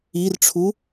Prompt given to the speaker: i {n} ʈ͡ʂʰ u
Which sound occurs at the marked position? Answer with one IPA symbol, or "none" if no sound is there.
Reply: r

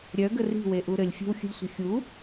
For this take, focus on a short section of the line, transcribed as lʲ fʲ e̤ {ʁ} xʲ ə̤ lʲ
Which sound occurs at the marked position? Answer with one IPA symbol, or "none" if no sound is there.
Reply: w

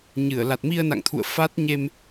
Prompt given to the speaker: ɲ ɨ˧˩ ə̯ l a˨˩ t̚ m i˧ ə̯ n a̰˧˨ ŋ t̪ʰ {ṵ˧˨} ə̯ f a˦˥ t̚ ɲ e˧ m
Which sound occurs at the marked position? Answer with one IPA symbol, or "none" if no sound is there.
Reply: ṵ˧˨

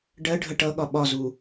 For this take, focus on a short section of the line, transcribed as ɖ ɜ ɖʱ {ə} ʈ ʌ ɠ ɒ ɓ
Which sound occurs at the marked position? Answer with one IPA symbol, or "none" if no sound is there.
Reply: ə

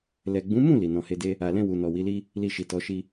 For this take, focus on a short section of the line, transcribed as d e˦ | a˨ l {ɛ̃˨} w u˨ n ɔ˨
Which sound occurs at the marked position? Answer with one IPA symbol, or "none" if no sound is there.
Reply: ɛ̃˧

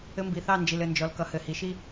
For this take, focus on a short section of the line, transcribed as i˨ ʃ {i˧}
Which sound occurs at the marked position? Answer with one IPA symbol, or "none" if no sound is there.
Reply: i˦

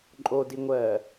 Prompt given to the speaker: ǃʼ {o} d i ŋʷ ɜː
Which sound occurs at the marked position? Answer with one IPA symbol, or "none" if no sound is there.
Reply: o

